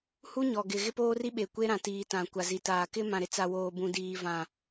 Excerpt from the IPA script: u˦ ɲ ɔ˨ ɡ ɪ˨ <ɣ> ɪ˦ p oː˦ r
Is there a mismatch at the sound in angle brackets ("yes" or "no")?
no